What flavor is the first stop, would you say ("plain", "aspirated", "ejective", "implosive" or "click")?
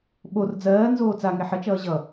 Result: implosive